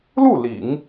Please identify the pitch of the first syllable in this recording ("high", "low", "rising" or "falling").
falling